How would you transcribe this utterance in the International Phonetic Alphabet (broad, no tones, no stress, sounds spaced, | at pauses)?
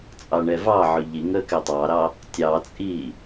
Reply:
t͡sʼ ɑ ɳ ɛ v ɑ ʕ ɵ ʎ i ŋ əː k ɛ tˤ ɑ ɾ ɑ | tʲ ɑ t͡sʼ iː